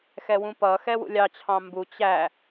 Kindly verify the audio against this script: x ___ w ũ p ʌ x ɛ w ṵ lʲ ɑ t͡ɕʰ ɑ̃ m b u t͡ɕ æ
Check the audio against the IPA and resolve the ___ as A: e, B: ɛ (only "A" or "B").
B